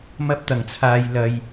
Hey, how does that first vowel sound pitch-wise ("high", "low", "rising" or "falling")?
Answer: high